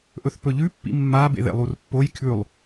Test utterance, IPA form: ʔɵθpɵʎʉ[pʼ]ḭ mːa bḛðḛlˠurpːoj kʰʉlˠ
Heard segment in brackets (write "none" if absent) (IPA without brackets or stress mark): pː